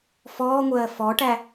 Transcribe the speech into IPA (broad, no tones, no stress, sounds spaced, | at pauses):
f ɔː ŋʷ ɜː f ɔ ʈ æ